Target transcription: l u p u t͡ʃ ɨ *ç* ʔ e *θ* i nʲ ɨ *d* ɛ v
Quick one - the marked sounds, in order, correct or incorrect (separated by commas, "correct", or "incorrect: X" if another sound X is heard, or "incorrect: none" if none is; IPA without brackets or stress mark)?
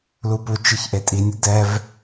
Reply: correct, incorrect: tʼ, correct